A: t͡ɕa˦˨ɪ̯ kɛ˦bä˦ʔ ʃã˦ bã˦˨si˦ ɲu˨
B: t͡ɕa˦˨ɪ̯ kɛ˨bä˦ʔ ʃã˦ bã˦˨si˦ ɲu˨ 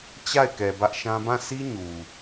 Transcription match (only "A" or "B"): B